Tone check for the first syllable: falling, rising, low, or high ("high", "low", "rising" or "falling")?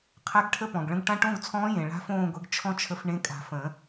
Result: rising